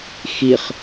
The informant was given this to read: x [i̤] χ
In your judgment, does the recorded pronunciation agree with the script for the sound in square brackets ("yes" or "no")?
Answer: no